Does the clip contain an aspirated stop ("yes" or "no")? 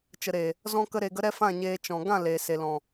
no